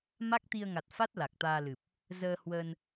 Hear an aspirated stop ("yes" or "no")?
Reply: no